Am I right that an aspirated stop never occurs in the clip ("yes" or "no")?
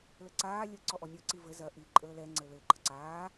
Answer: yes